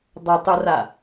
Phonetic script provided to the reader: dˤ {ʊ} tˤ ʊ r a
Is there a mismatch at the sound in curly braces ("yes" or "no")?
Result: no